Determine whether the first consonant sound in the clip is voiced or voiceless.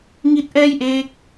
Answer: voiced